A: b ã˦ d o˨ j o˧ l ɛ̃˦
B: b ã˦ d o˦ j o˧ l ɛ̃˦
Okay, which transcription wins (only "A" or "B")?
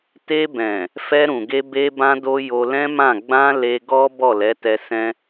B